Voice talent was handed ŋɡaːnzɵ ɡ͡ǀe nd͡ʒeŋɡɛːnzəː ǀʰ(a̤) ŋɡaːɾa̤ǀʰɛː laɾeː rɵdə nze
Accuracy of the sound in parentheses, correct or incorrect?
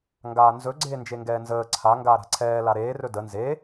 incorrect